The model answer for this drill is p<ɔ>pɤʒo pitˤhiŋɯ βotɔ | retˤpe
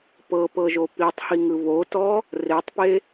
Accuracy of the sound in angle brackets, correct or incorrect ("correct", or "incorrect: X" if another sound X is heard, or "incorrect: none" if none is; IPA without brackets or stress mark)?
incorrect: ɤ